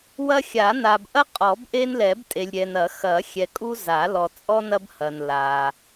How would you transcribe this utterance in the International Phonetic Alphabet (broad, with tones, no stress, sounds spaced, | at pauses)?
w ɐ˦ xʲ a˨˩˦ n a˨ b ʔ ɐ˦ qʼ ɔ˨˩˦ b ʔ e˦ n l ɛ˨˩˦ b tʼ e˨ lʲ ɾʲ ɛ˨ n ɐ˨˩˦ x ɐ˨˩˦ xʲ ɛ˨ kʼ u˦ z a˨˩˦ l ɔ˨ t͡sʼ ɔ˦ n ɐ˦ b h ɐ˨ n l a˨